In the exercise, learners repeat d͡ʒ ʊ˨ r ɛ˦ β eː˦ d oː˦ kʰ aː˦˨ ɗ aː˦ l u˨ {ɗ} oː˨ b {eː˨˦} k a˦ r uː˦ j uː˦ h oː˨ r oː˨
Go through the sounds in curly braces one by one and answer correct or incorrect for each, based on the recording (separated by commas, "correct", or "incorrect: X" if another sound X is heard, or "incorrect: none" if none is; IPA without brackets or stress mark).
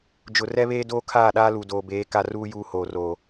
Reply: incorrect: d, correct